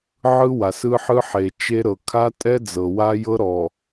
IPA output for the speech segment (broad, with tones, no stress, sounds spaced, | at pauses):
ʕ ɯ˦ w a˨ s ɯ˦ ħ ɯ˦ ħ e˨ t͡ʃ e˦ ɾ ɤ˨ kʰ a˦ tʼ ɛ˦ d͡z ɤ˨ w a˦ j ɤ˦ ɾ ɔ˨